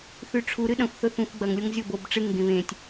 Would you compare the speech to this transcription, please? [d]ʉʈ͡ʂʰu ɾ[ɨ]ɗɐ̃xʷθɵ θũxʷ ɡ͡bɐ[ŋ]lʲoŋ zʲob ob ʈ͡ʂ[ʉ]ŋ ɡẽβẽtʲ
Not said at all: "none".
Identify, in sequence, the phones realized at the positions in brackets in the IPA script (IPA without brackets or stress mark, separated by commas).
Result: θ, ɨ, ŋ, ɨ